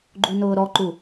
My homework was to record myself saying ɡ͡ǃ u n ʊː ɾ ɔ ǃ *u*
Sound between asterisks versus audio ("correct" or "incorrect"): correct